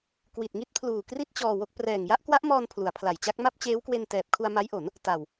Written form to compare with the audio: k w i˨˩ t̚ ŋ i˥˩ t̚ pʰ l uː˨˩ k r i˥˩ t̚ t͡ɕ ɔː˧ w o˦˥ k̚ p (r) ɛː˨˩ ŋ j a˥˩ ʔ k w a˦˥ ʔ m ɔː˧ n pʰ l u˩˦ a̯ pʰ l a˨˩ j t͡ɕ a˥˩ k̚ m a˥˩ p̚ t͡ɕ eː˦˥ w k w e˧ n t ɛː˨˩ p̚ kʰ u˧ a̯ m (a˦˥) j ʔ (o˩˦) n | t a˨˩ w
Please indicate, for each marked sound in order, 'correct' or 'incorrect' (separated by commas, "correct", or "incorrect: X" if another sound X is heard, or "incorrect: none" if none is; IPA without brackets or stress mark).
correct, correct, correct